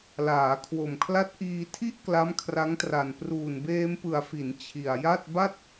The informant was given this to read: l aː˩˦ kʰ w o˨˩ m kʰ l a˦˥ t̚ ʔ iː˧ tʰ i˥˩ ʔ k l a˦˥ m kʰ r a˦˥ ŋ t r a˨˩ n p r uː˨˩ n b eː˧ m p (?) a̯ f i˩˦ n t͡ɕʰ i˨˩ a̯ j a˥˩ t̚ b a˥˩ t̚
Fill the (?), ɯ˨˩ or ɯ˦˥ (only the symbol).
ɯ˨˩